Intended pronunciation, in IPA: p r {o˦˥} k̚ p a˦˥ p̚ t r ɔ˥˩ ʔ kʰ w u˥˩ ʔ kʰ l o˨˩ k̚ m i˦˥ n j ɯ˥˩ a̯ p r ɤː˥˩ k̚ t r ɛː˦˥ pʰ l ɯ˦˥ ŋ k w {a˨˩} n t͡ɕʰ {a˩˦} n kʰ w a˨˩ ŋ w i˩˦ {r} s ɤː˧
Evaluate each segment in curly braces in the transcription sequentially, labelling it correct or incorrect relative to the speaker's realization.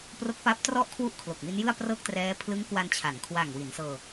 correct, incorrect: a˧, correct, incorrect: n

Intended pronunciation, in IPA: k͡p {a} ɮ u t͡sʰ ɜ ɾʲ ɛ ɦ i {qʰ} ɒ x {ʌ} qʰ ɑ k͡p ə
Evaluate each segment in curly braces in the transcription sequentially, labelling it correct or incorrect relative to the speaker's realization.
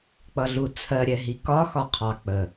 incorrect: ʌ, incorrect: k, incorrect: ɒ

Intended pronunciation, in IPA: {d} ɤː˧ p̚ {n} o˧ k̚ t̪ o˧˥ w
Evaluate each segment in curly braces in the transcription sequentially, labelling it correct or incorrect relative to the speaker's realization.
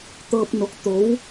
incorrect: t̪, correct

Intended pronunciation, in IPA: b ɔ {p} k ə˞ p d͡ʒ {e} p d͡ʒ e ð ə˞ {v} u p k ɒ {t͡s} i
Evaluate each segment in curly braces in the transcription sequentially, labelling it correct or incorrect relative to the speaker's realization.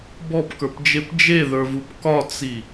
correct, correct, correct, correct

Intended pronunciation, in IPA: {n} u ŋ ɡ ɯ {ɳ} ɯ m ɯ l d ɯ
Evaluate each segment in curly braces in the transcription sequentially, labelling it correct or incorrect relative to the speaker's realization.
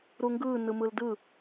incorrect: ɾ, incorrect: n

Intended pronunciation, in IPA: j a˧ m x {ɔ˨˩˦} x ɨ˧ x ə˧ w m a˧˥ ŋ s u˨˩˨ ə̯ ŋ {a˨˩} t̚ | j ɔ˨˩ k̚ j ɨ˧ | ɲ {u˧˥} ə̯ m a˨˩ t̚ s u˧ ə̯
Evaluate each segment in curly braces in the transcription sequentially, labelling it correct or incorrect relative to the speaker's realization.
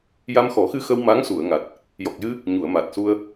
correct, correct, incorrect: u˨˩˨

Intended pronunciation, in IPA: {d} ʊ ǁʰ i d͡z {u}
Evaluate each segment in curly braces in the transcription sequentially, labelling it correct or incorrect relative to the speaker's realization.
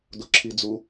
correct, correct

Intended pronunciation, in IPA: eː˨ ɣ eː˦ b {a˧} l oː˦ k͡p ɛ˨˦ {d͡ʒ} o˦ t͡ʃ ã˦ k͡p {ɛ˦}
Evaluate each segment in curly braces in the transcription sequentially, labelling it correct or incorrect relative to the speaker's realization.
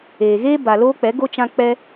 incorrect: a˨, incorrect: ɡ, correct

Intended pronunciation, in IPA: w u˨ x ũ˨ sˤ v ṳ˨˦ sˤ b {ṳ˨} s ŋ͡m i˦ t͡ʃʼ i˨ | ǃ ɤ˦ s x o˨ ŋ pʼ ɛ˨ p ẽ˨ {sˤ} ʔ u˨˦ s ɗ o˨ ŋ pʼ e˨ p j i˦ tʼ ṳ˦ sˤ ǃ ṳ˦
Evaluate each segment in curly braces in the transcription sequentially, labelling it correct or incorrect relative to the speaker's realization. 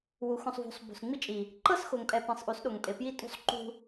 correct, correct

